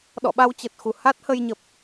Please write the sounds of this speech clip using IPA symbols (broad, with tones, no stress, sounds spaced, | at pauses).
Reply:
ɗ ɔ̰˧˨ ɓ a˧ w t͡ɕ ə˨˩ t̚ x u˨˩ h a˦˥ t̚ h ə˧ j ɲ ə˨˩ p̚